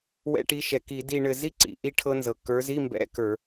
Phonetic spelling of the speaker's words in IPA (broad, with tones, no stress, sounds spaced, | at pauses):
w ɛ̰˧˥˧ ʈ i˨˦ ʃ ɛ˩ k i˧˩˧ d i˦˨ ɳ ɘ˦˨ z i˥ ǀ ḭ˩ ʔ i˦˨ ʈʰ ɤ˥ n z ɤ˩ k ə˞˨˦ z i˧˥˧ m b ɛ̰˧˥˧ k ə˞˧˩˧